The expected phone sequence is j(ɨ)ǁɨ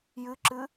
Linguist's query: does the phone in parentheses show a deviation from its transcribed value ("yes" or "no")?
no